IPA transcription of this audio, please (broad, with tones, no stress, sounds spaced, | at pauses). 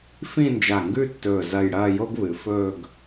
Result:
f ĩ˥˧ n d͡ʒ a˧˩ ŋ ɡ ʉ˥˧ tː ɵː˧˩ z ɐ˥˧ j ɽ ɐː˥˧ j o˥ ɡ β ɨ˩˧ f ɵː˥˧ ɡ